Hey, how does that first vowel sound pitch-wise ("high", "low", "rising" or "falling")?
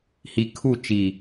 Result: low